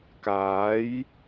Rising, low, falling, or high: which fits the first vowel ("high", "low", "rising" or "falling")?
rising